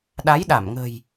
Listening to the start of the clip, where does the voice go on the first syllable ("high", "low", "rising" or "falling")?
rising